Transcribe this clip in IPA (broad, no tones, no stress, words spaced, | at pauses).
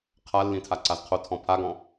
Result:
qʰalːĩtʰa ǀazqʰo tʰɔ̃pʰaɡɔ̃